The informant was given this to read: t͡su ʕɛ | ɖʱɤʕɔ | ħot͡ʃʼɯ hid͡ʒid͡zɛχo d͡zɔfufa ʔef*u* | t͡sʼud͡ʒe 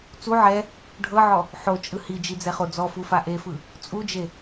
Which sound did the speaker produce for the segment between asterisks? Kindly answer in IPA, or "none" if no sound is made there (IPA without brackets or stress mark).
ɯ